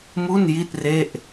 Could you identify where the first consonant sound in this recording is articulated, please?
labial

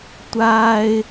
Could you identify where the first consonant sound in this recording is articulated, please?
alveolar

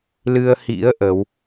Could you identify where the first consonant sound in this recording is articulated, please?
alveolar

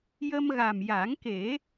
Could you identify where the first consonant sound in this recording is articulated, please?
palatal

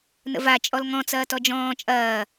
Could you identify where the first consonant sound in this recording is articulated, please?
alveolar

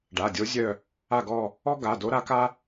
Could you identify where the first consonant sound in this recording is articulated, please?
retroflex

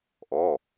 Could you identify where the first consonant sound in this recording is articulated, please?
glottal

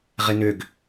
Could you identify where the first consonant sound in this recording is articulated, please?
uvular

